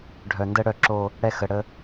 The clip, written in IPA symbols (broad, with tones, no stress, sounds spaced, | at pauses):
ɖʱ œ˨ n d ə˦ ɽ œ˦˨ ǁ o˦ | ɽ ɛ˦ x ə˨ ɽ ə˦